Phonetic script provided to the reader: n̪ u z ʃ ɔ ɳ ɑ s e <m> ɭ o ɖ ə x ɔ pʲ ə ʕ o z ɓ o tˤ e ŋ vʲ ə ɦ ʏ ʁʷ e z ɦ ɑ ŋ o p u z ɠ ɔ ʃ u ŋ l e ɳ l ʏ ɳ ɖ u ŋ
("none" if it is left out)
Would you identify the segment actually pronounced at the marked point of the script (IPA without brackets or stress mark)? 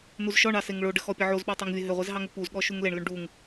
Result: ŋ